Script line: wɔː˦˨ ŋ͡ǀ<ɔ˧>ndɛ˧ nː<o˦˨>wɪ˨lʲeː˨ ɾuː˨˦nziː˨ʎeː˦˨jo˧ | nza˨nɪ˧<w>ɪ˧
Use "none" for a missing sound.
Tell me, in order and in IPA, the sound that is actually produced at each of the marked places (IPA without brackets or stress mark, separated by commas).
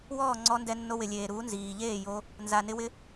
ɔ˧, o˧, w